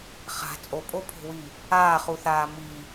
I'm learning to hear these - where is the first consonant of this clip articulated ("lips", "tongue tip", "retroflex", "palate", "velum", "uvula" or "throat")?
uvula